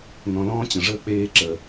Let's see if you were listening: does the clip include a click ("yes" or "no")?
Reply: yes